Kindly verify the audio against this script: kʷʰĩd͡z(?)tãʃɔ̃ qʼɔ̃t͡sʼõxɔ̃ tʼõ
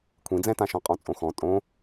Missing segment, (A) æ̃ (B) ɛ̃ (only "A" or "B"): B